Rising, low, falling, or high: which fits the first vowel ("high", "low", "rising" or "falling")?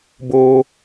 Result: high